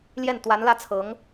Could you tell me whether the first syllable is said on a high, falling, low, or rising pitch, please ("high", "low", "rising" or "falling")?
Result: falling